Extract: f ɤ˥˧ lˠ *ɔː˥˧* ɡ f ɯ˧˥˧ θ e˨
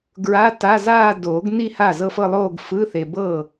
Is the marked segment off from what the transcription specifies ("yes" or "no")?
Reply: yes